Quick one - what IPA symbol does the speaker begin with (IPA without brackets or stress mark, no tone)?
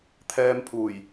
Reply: t̪ʰ